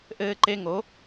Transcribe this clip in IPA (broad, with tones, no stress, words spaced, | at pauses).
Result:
ʔɘː˧ǃe˧ŋo˩˥